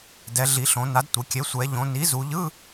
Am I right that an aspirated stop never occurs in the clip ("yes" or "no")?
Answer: yes